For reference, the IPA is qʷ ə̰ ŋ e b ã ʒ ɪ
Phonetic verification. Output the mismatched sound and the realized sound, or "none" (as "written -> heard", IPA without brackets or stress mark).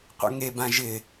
none